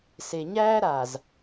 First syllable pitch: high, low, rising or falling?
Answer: low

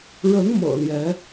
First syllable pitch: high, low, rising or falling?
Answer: rising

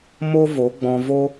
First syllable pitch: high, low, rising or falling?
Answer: high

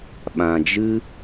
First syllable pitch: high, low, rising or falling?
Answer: low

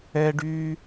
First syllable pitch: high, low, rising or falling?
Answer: high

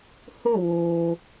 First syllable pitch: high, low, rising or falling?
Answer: falling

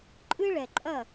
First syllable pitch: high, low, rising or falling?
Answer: high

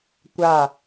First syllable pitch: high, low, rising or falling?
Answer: falling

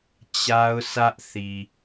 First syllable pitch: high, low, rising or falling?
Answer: high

